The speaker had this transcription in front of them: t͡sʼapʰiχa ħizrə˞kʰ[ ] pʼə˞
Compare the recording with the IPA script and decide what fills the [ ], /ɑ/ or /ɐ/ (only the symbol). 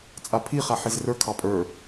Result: ɑ